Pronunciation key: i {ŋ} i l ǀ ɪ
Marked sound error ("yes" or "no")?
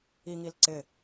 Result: no